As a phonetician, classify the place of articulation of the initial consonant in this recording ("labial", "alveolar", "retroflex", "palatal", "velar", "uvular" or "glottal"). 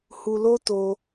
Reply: glottal